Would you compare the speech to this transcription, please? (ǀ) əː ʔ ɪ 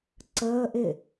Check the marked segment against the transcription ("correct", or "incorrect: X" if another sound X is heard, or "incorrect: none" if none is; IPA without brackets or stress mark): correct